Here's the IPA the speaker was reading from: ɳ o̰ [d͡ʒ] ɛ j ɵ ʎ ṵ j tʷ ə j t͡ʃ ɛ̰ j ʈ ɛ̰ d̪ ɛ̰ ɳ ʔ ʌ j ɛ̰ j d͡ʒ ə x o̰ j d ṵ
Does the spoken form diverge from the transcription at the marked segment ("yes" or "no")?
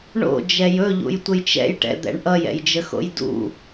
no